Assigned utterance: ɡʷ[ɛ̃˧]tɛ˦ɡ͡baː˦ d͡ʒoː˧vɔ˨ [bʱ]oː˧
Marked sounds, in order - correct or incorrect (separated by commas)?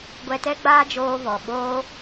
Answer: incorrect, incorrect